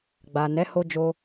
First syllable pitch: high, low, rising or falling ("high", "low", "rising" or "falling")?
low